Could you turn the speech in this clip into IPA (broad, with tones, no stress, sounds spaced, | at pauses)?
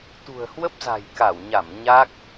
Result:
t̪ ṳ˨˩ ə̯ h w ə˦˥ p̚ z a̤˨˩ j k a˧˩ w ɲ a˧˩ m ɲ a˦˥ k̚